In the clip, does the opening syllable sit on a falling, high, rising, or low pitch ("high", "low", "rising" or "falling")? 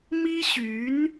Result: high